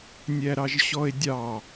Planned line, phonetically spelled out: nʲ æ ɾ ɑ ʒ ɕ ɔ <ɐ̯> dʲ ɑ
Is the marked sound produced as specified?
no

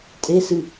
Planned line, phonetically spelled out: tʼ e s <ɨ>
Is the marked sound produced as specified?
yes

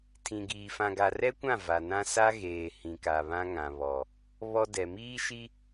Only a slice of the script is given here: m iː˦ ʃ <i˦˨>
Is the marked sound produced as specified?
no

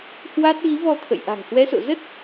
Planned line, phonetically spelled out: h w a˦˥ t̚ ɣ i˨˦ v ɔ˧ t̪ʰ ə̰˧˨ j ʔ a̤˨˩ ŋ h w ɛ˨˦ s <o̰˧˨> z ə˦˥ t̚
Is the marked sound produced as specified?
yes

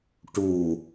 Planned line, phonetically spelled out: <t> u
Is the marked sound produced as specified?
no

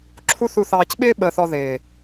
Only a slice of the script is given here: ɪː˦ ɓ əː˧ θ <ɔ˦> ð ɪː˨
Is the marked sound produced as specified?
no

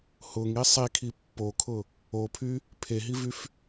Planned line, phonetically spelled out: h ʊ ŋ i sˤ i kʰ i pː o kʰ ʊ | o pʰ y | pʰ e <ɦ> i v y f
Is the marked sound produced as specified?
yes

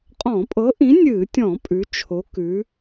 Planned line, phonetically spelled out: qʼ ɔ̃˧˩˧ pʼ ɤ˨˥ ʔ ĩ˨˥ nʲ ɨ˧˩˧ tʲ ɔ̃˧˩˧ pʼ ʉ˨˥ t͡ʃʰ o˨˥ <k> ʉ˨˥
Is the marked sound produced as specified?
yes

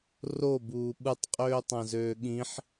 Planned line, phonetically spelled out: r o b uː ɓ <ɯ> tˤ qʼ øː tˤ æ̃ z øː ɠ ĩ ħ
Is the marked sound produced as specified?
yes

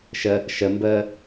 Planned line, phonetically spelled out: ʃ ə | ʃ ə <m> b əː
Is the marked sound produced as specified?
yes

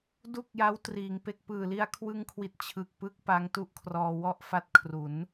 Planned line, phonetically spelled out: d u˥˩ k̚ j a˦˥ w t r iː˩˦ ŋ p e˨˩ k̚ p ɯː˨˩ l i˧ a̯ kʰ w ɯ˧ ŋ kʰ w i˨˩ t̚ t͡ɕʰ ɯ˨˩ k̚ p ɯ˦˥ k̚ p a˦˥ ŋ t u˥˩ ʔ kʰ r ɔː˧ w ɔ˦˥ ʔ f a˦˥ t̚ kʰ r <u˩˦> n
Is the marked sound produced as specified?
yes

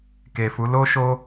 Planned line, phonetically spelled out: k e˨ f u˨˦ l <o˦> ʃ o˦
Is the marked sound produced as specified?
yes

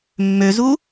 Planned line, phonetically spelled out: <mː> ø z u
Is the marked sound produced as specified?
yes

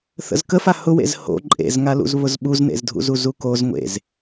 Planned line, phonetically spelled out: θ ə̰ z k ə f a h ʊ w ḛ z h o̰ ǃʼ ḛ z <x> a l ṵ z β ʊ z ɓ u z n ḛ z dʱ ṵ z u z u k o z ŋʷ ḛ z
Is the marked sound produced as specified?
no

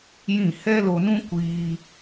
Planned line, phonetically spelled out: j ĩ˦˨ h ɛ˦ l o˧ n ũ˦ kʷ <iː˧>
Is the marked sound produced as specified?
yes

